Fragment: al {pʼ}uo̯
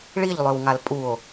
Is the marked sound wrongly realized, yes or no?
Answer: no